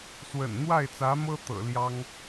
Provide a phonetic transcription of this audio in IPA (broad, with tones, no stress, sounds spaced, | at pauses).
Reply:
s w ə̰˨˩ n n̪ w a˥˩ ɪ̯ t͡s ä˧˥ m ɤ˥ t̪ ɤ̰˨˩ l j ɑ˥ ŋ